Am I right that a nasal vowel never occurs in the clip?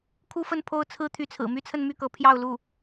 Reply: yes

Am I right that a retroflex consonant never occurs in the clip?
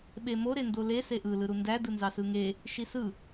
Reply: yes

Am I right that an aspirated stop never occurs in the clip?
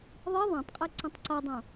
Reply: yes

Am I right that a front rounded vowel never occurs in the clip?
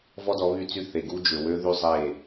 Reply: no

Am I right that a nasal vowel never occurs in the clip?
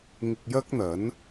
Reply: yes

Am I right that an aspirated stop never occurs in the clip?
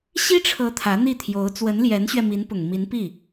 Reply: no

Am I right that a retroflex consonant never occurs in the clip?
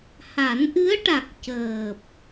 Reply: no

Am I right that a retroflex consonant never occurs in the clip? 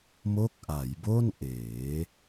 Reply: yes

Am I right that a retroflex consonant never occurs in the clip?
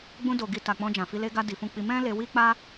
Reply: yes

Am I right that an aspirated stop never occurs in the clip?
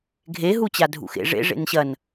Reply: yes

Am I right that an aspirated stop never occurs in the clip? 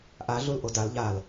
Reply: yes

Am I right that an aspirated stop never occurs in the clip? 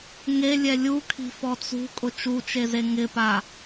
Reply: no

